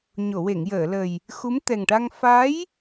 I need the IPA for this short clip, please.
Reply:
ɲ o˨˩˨ w e˨˩˨ ŋ j əː˨˩˨ l ə˨˩ j | x u˧˥ m t̪ ɛ˨˩ ŋ ʈ a˧ ŋ f a˧˥ j

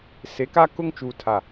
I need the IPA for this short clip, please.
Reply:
s e˨˦ k a˦ k ʊ˦˨ ŋ t͡ʃ uː˨ tʰ a˨

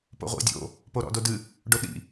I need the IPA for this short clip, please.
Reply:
p o̰ ʁʷ ḭ dʲ o̰ | p o ɾ ɔ̰ d o d ɨ | ɖ o ɗ ḭ

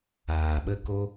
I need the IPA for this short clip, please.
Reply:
aː˨ ɓ ə˦ k o˦

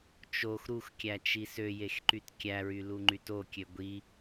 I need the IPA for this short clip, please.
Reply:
t͡ʃ o x ɾ u x kʲ æ t͡ʃ i s ø j e x ǃ y t kʲ æ ɹ y l u ŋ͡ǃ y t o kʲ ø ɡʷ i

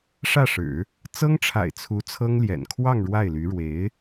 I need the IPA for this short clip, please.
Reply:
ʂ ä˥˩ ʂ ɻ̩˨˩˦ | t͡s ɤ˥ ŋ ʈ͡ʂʰ a̰˨˩ ɪ̯ t͡sʰ u˧˥ t͡sʰ ɤ˥ ŋ l j ɛ̰˨˩ n kʰ w ɑ˥˧ ŋ ɻ w a˥˩ ɪ̯ l y˧˥ ɻ w e˧˥ ɪ̯

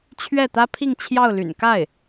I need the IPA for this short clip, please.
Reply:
t͡ɕʰ ɥ ɛ˥˩ t̪ ä˥ pʰ i˥˧ ŋ t͡ɕʰ j ɑ˥˩ ʊ̯ l y̰˨˩ n k a˥˩ ɪ̯

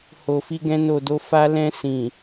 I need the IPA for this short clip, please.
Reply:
h o˨ f i˧ ɡ ɛ̃˧ n o˨ d o˨ f a˧ l ɛ̃˧ s ĩ˨

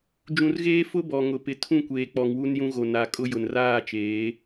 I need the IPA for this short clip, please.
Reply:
d͡ʒ ũ˨ r ɣ eː˦ f ʊ˦ b ɔ˨ ŋ ʊ˨ p ɪ˨ tʰ ũ˦˨ kʷ eː˨ k͡p ɔ˨ ŋ w u˦ n j ũ˦ ɣ o˨ n a˨ kʼ ʊ˦ j ʊ˨ n r aː˦˨ t͡ʃ eː˨˦

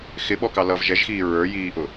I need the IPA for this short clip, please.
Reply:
x ɪ ɓ ɔ k ɑ l ʌ v ʒ ɛ ʒ x iː ɹ ə˞ j iː ʔ ʊ

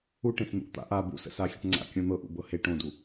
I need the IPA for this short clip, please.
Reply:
u ʈ ẽ s n̪ ṵ ʔ t̪ a̰ ʔ a b ṵ s ə̰ s a xʲ ə ʈ ŋ͡ǀ a̰ kʲ õ n̪ ɤ ʔ ṵ b ɤ h e ʈ õ d u

